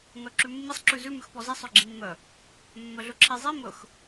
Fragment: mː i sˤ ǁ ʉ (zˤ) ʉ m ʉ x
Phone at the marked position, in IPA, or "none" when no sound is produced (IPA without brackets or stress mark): z